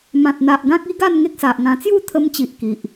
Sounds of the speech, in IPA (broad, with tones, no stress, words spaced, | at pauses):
mã˨t̚n̪a˨ʔɡã˦k̚ i˦ɡa˥˧n ŋe˦k̚sa˨ʔŋã˧ t͡sju˥˧t̪ʰə˧mt͡ɕi˨ʔ ki˨ʔ